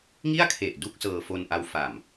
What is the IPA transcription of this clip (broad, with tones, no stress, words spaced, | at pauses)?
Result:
ŋi˥˩a̯kʰe˨˩ʔ du˥˩k̚sɤː˧fo˧nʔa˧w fa˨˩m